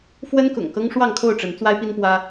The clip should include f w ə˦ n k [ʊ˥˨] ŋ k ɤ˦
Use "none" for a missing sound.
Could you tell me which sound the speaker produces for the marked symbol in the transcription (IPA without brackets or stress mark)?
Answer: ʊ̰˨˩